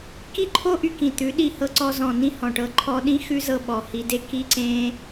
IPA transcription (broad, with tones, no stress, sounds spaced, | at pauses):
k i˦ ǃʰ o˦ ʔ y˧ k ĩ˨ t̪ ʉ˨˦ ɗ i˧ h ɤ˧ ǀ ɔ˧ z ɔ̃˨ n ĩ˧ h ɔ̃˨ ʈ ɤ˧ ǃʰ ɔ˧ ɗ ĩ˦ x ʉ˦ z ɤ˧ ɓ ɔ˨ h i˧ d e˦ k i˦ ǀ ẽ˦